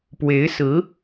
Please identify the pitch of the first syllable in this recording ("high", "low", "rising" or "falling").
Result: rising